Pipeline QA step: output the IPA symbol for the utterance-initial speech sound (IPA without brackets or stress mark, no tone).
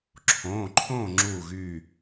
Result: ǁʰ